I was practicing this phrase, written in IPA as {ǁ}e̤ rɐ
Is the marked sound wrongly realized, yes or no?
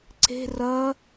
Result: yes